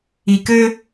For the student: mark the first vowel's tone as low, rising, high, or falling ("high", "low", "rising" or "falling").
low